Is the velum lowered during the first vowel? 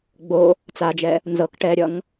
no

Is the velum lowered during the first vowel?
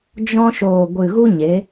yes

